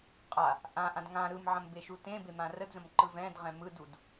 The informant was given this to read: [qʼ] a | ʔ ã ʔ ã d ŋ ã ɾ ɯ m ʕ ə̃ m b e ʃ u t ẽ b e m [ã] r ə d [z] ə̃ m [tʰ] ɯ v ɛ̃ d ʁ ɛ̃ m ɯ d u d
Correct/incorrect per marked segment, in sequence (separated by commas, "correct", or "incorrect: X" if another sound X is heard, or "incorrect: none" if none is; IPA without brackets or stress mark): correct, correct, correct, incorrect: ǃ